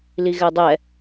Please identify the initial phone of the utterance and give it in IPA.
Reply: l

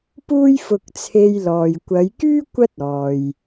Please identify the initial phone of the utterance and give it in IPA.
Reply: p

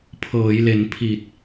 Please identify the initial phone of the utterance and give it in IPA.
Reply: pʰ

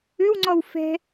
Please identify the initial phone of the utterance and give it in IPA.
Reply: ʏ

